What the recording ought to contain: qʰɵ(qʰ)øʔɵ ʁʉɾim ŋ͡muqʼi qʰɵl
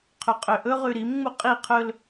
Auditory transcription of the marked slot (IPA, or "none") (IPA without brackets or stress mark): qʼ